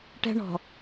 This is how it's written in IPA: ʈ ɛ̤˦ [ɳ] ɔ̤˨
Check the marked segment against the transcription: correct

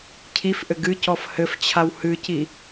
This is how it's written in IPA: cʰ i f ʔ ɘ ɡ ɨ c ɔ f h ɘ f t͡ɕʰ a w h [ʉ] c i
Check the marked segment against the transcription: incorrect: ɨ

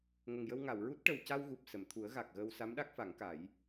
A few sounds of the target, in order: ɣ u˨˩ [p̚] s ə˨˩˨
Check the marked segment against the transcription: correct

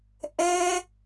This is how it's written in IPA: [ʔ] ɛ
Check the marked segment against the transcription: correct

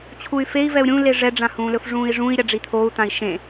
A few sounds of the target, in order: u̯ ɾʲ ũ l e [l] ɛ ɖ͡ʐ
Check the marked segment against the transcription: incorrect: ʐ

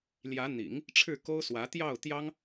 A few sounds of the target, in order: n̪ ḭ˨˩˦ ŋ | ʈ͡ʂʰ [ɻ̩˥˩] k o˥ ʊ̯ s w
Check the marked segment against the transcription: correct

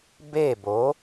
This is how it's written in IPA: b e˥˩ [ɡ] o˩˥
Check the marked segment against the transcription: incorrect: b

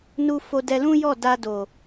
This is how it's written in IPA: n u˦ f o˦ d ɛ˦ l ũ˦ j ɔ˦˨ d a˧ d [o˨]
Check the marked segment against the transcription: correct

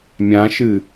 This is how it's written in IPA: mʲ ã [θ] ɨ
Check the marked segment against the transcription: incorrect: ʃ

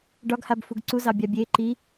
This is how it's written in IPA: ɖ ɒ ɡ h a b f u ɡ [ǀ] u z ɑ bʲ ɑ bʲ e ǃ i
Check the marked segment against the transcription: correct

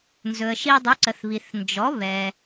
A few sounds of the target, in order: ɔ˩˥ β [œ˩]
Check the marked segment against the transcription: incorrect: ɛ˩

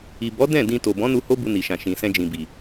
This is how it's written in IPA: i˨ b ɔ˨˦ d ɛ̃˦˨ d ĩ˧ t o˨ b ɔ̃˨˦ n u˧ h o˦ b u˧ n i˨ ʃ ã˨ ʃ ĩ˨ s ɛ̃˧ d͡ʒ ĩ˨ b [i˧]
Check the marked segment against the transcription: incorrect: i˨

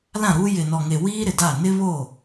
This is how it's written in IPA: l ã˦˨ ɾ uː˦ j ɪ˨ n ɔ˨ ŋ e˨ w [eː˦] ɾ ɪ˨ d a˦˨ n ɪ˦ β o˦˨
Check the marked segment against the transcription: incorrect: iː˦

